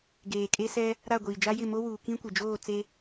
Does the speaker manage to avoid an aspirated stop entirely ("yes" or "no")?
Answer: yes